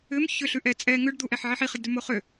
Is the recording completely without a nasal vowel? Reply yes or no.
yes